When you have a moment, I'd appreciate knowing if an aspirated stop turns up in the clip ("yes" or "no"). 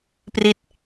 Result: no